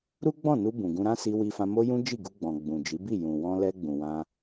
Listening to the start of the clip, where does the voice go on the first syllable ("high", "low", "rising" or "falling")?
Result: high